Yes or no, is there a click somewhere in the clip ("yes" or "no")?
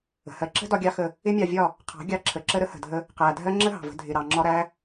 yes